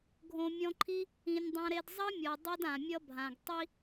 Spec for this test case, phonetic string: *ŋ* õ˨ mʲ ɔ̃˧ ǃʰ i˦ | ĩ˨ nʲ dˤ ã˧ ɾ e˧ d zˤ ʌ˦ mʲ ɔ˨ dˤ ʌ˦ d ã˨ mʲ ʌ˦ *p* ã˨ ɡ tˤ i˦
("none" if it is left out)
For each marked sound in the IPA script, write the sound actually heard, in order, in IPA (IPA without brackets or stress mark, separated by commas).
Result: ɡʱ, bʱ